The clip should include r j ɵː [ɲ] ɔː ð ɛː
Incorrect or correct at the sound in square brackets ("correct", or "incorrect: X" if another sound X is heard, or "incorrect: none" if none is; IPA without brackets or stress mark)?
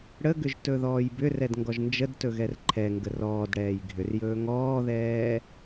incorrect: ŋ